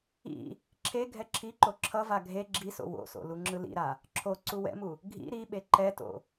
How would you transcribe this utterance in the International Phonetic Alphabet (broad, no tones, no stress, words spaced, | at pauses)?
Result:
ḭ | ǁʰe ɡʱɛǁʰiǃo ǁʰʌva ɡʱe ɡ͡ǁiso̰ wo̰so̰ luŋ͡ǁɯlḭɾa | ǁʰo ǀuwɛ̰mu | ɡʱḭ ɾiɓe ǃɛto̰